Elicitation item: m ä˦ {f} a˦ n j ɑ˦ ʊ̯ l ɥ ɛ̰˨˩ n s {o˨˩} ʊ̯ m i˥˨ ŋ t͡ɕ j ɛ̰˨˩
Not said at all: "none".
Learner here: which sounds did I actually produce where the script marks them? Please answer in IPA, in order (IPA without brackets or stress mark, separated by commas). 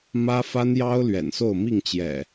f, o˥˨